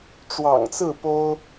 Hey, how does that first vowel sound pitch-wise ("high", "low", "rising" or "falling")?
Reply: low